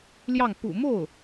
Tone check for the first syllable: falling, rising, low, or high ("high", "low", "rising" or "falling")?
falling